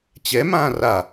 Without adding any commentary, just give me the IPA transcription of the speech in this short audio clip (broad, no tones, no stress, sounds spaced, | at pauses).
t͡ɕ ɛ m ãː r a